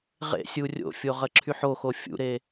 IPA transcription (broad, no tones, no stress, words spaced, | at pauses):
ʁḛsʲu rʲo̰fʲoʁ əǁʰyħoxo fʲṵɾe